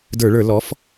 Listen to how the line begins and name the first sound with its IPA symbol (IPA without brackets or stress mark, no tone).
d